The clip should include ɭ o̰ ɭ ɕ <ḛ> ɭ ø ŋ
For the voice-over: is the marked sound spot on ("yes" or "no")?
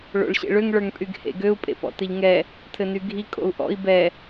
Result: yes